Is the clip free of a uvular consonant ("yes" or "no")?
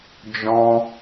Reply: yes